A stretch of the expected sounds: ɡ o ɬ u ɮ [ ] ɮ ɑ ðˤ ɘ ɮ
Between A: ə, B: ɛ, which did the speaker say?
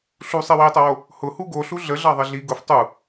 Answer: A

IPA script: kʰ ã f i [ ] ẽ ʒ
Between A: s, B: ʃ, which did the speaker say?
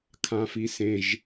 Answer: A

